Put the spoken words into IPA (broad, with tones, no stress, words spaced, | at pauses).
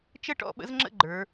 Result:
t͡ʃə˥˩ʈɔ̰˧ ɓə̰˧˥zŋ͡ǁə̰˥˩ ɡ͡ǃə˞˩˧